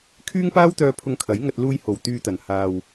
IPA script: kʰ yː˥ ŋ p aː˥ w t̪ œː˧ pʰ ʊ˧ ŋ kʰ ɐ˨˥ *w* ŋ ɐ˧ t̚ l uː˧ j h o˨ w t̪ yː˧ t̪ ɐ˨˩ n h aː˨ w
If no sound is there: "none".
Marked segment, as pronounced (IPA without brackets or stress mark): j